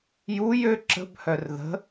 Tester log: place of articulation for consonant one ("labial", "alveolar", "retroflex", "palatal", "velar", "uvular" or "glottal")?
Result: palatal